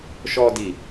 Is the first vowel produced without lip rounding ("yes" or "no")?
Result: no